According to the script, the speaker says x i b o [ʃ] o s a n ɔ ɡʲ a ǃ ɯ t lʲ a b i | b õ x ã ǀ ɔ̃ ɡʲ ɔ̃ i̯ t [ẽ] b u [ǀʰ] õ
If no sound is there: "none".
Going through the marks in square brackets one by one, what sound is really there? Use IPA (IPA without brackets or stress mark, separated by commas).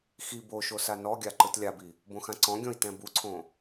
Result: ʃ, ɛ̃, ǀʰ